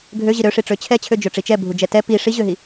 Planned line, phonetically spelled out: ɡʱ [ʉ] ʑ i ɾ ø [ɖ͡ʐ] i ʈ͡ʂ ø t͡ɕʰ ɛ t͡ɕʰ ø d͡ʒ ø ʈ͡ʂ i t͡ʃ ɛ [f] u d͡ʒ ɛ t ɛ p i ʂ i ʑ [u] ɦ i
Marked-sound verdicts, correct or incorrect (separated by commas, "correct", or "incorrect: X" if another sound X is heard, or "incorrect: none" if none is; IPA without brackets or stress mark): incorrect: ø, incorrect: ʂ, incorrect: bʱ, incorrect: ø